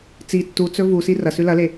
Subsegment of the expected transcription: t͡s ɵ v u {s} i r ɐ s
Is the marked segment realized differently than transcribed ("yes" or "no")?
no